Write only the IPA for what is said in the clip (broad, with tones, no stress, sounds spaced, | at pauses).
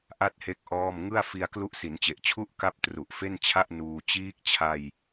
ʔ a˥˩ t̚ h e˦˥ k̚ ʔ ɔː˥˩ m ŋ ɯ˥˩ a̯ f i˧ a̯ k l u˦˥ ʔ s i˩˦ n t͡ɕ e˨˩ ʔ t͡ɕʰ u˥˩ ʔ k a˦˥ p̚ t r u˨˩ ʔ f e˥˩ n t͡ɕʰ a˥˩ ʔ n uː˧ t͡ɕ iː˦˥ k̚ t͡ɕʰ a˧ j